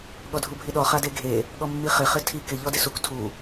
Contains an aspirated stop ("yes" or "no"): yes